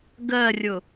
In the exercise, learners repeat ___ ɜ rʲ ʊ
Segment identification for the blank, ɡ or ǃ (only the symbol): ɡ